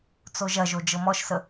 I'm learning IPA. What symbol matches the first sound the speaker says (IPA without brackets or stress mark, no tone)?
t͡s